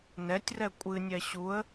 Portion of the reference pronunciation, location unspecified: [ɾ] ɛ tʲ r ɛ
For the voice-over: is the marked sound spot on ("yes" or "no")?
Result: no